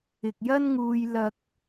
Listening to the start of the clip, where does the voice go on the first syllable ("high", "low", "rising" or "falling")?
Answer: low